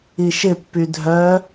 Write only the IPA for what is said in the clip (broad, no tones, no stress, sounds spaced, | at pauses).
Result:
i ʃ ɪ pː y dʱ œ